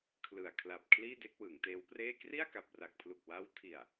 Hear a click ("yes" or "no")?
no